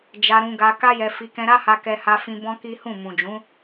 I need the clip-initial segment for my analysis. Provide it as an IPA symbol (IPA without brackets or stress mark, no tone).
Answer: d͡ʒ